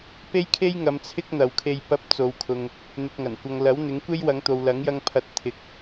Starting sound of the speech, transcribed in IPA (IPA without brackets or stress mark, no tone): p